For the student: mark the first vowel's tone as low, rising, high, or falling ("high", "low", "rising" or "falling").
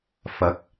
rising